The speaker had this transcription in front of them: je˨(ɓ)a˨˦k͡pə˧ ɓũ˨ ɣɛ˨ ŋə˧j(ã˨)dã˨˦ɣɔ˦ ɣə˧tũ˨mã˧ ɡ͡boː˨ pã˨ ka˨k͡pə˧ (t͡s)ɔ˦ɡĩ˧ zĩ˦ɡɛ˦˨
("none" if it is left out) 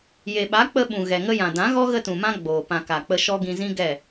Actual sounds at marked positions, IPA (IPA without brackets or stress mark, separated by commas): ɓ, ã˨, ʃ